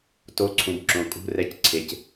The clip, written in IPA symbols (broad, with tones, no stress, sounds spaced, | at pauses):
t o˧˥˧ ǀʰ ũ˨ b ǁ õ˨ kʼ ṳ˧˥˧ r ɛ˧˥˧ c ǀʰ e˨ c